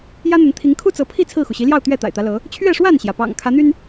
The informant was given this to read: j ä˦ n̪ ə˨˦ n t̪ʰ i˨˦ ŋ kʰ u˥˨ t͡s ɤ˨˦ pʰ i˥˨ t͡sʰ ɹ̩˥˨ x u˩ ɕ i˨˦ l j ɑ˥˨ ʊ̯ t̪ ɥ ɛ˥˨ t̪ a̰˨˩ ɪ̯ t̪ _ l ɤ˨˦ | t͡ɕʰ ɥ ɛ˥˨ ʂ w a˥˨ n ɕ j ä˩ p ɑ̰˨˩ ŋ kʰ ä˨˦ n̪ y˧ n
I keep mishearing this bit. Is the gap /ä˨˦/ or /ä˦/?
ä˦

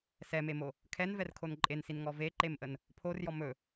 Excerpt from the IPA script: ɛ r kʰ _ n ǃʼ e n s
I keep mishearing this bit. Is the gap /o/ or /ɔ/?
o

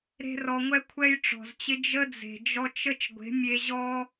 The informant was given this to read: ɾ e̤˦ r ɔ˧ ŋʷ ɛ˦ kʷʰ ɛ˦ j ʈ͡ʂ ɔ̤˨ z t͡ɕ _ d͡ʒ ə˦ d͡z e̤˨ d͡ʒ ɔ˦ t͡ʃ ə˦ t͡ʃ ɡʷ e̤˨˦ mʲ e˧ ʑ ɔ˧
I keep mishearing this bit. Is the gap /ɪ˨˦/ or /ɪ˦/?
ɪ˦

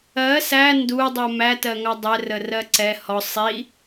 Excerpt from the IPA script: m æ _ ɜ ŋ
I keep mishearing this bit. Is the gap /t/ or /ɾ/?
t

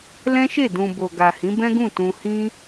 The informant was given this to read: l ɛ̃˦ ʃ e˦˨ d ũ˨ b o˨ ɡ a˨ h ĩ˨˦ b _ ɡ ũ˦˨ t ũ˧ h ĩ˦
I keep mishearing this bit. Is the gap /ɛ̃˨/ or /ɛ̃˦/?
ɛ̃˦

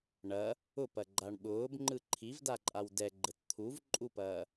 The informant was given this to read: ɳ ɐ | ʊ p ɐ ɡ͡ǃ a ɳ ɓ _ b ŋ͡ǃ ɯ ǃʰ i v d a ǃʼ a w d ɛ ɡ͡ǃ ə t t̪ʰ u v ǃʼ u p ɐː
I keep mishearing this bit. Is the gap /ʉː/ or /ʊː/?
ʊː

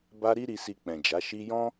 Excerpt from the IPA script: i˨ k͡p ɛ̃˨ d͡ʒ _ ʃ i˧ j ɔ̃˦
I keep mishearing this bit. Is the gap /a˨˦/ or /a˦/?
a˨˦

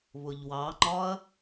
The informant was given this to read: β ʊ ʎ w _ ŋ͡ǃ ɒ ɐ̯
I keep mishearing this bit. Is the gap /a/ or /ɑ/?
ɑ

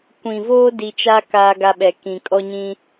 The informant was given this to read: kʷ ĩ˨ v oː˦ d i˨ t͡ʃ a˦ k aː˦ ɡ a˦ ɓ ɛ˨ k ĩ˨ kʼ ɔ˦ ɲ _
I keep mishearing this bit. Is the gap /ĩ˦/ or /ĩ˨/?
ĩ˦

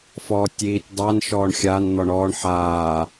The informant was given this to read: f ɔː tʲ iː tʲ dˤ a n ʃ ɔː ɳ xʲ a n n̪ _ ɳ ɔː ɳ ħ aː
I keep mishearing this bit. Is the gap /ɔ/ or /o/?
ɔ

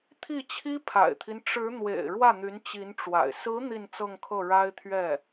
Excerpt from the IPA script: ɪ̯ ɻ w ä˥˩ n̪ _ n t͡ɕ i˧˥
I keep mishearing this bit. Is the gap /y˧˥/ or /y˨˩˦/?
y˧˥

